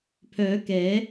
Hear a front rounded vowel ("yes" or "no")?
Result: yes